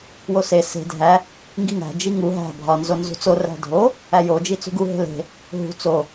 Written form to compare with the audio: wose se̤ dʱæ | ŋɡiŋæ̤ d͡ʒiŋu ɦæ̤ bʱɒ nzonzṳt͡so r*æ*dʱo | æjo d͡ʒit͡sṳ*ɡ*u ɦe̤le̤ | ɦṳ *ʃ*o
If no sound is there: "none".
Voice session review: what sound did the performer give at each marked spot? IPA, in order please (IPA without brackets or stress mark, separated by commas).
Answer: æ̤, ɡ, t͡s